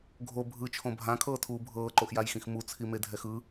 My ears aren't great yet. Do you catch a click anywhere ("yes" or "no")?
yes